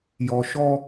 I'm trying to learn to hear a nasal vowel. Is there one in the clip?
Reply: no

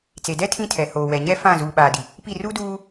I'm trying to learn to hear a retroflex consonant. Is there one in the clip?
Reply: no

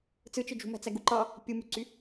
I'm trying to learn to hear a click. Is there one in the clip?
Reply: yes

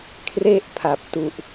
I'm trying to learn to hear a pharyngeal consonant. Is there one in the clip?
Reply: no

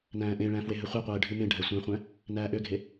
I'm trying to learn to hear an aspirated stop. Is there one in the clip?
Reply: no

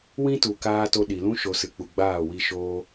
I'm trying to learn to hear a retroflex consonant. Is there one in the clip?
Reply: no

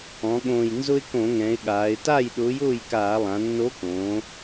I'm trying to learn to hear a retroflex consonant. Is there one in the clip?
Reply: no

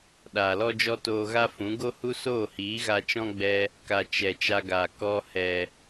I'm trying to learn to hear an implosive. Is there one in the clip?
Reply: yes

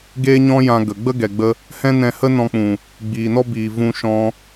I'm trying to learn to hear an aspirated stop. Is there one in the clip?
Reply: no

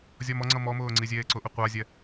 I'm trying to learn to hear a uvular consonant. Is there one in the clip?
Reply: yes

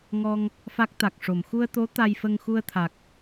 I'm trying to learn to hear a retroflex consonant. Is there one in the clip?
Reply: yes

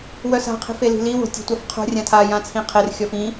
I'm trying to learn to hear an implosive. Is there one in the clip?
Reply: no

